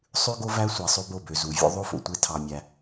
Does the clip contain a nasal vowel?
no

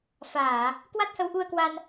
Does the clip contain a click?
no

